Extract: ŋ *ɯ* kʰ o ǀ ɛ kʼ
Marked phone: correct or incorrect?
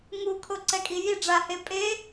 incorrect